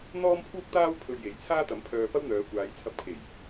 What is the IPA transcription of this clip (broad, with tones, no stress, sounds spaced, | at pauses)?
n̪ ɔː˥ m pʰ uː˥ k̚ t̪ aː˥ w pʰ ɵ˧ ɥ j e˨˥ j t͡sʰ aː˥ t̪ ɐ˨˥ m pʰ œː˧ p ɐ˥ w n̪ œː˨˧ kʷ aː˨˧ j t͡sʰ ɐ˧ p̚ kʰ e˨˩ j